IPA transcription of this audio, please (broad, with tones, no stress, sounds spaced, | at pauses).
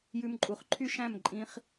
j ʉ˧ m ǃʼ u˨ χ ǃʰ y˦ ʃ æ̃˦˨ m ǃʼ ĩ˧ χ